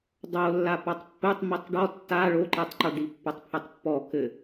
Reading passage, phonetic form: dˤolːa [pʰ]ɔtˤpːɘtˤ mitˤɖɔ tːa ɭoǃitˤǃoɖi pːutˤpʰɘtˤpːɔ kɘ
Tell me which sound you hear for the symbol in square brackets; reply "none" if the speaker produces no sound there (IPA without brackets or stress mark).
p